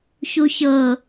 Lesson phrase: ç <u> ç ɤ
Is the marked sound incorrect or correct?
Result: correct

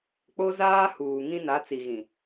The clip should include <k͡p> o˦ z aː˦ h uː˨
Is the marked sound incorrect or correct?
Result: correct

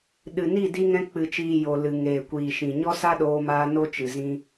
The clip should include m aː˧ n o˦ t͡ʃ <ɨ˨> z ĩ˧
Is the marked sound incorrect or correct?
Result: correct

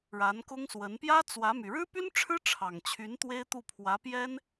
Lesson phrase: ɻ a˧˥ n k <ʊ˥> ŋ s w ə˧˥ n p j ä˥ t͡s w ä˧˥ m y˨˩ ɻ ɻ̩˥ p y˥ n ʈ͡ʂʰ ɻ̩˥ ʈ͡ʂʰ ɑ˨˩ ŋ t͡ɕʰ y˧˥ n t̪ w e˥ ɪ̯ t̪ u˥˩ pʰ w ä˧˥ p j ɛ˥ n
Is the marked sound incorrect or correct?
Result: correct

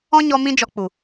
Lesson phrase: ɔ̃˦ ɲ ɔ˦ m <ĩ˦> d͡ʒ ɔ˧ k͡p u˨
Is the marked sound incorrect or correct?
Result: correct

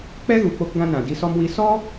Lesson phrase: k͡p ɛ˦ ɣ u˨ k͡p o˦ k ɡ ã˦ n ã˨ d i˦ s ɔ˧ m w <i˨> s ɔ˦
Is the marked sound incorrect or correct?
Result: incorrect: i˧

